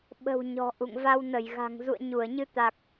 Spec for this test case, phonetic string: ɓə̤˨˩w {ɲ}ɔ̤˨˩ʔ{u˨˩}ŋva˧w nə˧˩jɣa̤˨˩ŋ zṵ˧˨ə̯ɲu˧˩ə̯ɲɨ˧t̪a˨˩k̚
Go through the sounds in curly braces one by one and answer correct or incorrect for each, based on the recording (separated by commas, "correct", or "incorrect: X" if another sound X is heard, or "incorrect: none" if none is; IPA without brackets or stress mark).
correct, incorrect: ṵ˧˨